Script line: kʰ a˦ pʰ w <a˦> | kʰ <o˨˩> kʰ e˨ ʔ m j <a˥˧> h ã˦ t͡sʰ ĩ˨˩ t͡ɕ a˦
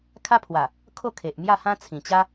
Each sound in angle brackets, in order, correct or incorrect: incorrect, incorrect, correct

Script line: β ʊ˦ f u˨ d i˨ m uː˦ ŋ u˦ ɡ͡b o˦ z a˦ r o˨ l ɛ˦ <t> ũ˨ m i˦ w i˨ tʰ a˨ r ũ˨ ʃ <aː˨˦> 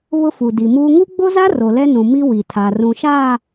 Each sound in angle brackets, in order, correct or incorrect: incorrect, incorrect

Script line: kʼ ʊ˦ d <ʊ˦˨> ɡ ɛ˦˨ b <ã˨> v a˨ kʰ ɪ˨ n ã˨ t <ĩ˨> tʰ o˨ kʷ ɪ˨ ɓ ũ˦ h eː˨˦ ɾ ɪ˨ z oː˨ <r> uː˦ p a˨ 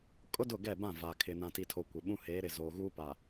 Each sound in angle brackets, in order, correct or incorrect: correct, incorrect, incorrect, incorrect

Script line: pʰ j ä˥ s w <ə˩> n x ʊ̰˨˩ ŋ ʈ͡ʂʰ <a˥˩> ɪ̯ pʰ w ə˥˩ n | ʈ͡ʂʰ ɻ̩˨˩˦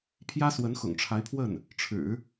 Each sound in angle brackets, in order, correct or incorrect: incorrect, incorrect

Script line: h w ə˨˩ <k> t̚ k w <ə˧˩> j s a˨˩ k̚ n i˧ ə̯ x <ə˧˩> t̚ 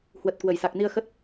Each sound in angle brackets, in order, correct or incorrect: incorrect, correct, incorrect

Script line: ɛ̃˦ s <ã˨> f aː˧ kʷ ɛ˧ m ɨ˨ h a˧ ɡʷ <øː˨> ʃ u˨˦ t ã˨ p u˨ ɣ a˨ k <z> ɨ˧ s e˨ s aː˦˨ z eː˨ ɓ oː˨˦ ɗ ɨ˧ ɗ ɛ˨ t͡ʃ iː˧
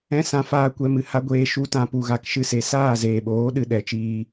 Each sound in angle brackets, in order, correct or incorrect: incorrect, incorrect, incorrect

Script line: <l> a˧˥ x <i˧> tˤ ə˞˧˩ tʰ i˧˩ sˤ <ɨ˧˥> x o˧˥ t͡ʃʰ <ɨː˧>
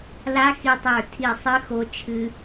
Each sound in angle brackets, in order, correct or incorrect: correct, correct, correct, incorrect

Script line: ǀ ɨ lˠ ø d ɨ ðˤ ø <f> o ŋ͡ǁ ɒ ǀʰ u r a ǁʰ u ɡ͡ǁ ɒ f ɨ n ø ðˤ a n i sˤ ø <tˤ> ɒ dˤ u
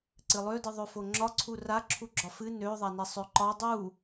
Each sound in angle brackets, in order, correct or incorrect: correct, incorrect

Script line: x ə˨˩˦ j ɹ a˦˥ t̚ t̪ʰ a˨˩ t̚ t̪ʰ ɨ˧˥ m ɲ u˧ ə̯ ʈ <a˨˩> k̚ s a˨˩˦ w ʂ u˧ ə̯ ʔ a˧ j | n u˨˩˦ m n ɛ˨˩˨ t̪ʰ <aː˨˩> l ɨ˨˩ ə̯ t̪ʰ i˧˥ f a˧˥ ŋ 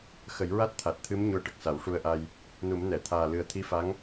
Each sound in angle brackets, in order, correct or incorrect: incorrect, correct

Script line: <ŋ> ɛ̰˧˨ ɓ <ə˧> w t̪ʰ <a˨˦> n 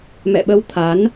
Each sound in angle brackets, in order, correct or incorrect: incorrect, correct, correct

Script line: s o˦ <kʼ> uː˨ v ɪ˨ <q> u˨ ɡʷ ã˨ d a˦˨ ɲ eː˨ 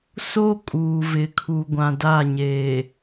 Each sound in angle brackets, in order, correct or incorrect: correct, incorrect

